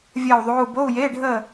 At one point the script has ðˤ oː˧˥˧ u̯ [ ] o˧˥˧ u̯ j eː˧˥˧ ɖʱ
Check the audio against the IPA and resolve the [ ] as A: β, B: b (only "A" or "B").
B